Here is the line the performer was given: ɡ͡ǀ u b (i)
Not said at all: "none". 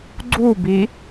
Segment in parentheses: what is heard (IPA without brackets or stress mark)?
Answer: i